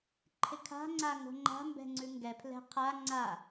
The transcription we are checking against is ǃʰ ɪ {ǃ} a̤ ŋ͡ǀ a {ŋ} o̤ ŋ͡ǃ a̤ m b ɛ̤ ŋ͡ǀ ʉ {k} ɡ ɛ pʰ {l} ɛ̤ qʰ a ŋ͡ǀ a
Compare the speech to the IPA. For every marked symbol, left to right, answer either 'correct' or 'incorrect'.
incorrect: kʰ, correct, incorrect: ŋ, correct

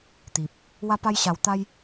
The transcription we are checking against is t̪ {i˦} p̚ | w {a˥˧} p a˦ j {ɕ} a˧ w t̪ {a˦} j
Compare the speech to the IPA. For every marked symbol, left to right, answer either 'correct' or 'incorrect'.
incorrect: i˨, incorrect: a˦, correct, correct

